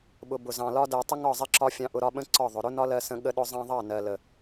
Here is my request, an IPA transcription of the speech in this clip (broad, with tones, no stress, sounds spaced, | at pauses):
ɓ ʊ˨ b ʊ˨ z ɑ̃˨ l ɒ˦ d ɜ˨ tˤ ɪ˦ ŋ ɒ˦˨ zˤ ɪ˧ ǁ ɒ˧ fʲ ɑ̃˧ ʔ ʊ˧ ɾ ɒ˧ ɓ ə̃˦ ǀ ɒ˦˨ ðˤ ʊ˨ ɾ ʊ˦ n ɒ˦ l ɜ˧ s ə̃˧ ɠ ə˧ ɗ ʊ˧ zˤ ɑ̃˧ ðˤ ɑ˦˨ n ɜ˨ l ə˨